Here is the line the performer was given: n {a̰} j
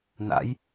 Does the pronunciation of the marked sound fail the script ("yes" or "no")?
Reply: no